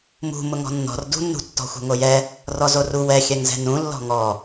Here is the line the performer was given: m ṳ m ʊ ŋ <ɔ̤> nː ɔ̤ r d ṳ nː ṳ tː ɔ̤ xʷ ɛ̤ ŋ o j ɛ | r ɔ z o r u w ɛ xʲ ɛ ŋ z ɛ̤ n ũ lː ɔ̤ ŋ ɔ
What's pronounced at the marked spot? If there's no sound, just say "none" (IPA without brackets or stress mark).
ɔ̤